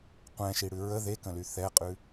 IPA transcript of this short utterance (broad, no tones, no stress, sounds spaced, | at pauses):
qʷ ɛ̃ ʃ i ɽ ʉ ɹ ə ð e k ə̃ l y θ ɛ qʼ ʉ